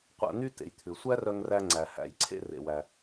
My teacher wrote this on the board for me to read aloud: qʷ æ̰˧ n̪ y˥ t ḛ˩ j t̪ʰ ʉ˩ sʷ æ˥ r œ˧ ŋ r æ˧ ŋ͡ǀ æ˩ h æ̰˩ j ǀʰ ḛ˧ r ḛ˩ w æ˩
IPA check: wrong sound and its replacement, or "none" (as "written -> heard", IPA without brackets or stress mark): none